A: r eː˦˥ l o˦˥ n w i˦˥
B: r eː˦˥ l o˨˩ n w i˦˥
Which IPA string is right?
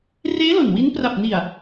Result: B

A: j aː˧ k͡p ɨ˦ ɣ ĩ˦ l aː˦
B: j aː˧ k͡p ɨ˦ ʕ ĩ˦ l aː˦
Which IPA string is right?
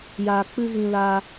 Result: A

